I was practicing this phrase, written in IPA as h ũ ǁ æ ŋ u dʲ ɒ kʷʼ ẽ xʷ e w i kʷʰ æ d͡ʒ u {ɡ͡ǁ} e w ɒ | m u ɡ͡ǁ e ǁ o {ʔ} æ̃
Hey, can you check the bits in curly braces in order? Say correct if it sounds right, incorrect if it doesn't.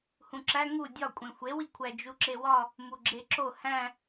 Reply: incorrect, incorrect

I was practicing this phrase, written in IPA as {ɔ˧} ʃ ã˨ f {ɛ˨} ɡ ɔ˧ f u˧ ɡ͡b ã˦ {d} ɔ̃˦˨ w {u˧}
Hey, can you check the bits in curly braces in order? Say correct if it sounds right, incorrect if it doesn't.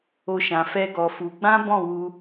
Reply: incorrect, incorrect, incorrect, correct

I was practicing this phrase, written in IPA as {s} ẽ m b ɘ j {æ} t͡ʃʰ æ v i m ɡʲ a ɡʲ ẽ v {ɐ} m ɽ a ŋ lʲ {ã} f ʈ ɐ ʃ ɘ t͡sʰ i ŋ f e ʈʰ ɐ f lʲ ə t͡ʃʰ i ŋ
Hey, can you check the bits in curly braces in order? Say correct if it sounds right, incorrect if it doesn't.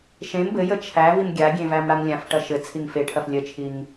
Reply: incorrect, incorrect, incorrect, correct

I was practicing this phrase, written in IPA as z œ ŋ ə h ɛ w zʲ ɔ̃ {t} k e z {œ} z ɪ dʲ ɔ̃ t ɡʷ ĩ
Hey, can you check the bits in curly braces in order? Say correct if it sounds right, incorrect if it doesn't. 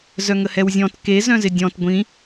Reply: correct, incorrect

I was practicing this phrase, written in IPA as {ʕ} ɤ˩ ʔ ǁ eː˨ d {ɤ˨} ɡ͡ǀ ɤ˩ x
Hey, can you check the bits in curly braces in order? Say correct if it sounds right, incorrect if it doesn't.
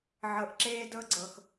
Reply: correct, correct

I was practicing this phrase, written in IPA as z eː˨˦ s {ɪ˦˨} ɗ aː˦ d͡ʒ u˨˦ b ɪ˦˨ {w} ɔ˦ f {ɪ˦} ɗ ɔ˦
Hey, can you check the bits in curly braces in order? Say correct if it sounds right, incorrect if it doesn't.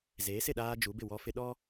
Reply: correct, correct, correct

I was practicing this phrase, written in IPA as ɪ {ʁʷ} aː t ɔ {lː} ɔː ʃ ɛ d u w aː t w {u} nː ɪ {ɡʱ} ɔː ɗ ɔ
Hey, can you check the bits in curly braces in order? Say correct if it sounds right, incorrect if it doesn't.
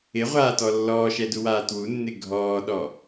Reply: correct, correct, correct, correct

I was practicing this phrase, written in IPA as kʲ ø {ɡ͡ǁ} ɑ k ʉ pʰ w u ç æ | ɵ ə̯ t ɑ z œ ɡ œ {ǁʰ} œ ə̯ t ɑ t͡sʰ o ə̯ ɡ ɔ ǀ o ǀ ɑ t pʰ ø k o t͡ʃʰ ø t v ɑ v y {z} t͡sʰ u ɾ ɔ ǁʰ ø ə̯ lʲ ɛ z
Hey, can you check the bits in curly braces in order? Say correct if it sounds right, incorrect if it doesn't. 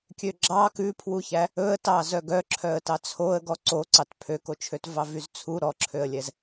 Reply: correct, correct, correct

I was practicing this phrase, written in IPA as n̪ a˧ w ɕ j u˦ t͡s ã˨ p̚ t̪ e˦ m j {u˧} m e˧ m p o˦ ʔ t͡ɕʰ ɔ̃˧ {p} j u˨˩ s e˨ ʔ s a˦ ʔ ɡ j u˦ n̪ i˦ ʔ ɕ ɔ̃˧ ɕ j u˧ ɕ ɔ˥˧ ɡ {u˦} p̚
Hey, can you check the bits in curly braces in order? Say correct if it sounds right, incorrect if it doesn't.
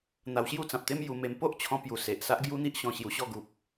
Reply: correct, correct, incorrect

